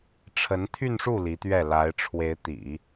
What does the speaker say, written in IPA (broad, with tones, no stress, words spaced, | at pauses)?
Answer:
ʈ͡ʂʰə˧˥nt̪ʰy˥˧nʂu˥˩ li˧˥t̪ɥɛ˥˩ la˧˥ɪ̯ ʈ͡ʂʰwe˧˥ɪ̯t̪ḭ˨˩˦